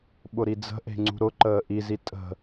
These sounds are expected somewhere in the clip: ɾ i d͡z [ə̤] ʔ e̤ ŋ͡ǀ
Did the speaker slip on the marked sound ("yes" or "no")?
no